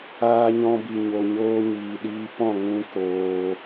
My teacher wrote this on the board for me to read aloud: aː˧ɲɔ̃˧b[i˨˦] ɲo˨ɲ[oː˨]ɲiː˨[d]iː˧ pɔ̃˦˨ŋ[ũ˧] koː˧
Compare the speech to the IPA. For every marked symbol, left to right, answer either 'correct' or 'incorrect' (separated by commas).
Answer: incorrect, incorrect, incorrect, correct